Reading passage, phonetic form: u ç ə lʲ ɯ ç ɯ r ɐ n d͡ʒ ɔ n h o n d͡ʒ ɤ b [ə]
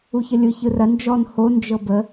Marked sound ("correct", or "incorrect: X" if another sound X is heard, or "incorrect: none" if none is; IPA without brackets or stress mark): correct